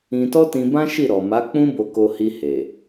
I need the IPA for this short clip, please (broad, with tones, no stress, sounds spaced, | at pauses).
ĩ˧ t ɔ˦ t ĩ˧ b ã˦ ʃ i˦˨ ɾ ɔ˨ m a˨˦ k͡p ũ˦ b o˧ k o˧ h i˧ h e˨